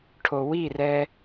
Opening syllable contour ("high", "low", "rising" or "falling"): low